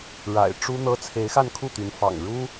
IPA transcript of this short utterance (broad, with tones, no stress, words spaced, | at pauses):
ɻa̰˨˩ɪ̯ ʈ͡ʂu˥n̪ɤ˥ t͡sʰe˧˥ɪ̯xa˥˧nkʰu˥˩t̪y˧˥n fɑ̰˨˩ŋɻu˥